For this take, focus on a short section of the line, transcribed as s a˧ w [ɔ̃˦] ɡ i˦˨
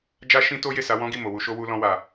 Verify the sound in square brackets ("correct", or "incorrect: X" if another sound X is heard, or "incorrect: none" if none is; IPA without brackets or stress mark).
correct